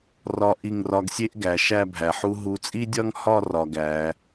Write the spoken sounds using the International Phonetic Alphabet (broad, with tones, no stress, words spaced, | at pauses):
rɒ˧ʔi˧˩ŋrɒ˧ɡsʲe˥ʔ ɡæ˩˧ʃæ˥˧bʱæ˩˧ħu˥ ɦu˧t͡sʼi˥dʲɒ˥ŋhɒ˥˧ rɒ˧ɡæ˩˧